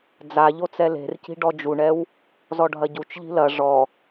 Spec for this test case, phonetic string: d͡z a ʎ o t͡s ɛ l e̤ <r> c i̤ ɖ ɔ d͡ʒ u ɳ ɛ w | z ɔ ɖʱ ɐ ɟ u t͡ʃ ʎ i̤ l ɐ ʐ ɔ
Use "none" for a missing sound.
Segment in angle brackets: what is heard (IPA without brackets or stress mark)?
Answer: r